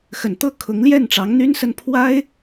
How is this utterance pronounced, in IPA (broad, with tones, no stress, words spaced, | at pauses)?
xə˨˩nt̪ɤ˥˩ kʰʊ˧˥ŋljɛ˥˩nʈ͡ʂɑ˧˥ŋ n̪y˥nsə˥˩n pʰwa˥ɪ̯